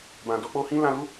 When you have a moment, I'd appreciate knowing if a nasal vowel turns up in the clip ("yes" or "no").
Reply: yes